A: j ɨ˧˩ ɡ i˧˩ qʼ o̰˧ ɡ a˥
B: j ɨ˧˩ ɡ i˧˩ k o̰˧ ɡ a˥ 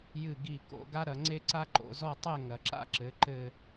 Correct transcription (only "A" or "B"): B